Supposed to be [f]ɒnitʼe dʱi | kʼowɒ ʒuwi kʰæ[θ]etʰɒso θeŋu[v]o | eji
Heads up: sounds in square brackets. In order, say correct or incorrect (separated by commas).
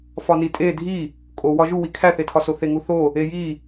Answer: correct, correct, incorrect